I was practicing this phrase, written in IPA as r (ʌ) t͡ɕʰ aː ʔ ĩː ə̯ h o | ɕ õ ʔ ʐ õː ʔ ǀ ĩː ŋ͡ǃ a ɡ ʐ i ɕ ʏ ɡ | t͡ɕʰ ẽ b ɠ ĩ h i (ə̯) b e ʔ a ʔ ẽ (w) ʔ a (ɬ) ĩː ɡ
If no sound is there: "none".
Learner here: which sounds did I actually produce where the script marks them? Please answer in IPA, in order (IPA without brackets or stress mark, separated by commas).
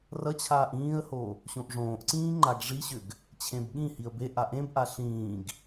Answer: ʌ, ə̯, b, ɬ